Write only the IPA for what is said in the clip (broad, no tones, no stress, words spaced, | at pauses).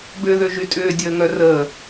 bʏːðøʒytʼʏː dʲəːŋœrəː